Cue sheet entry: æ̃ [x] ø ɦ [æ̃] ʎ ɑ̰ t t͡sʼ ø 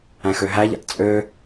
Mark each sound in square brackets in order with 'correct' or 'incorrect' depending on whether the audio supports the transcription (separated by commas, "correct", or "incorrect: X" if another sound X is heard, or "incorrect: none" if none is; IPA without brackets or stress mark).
correct, incorrect: æ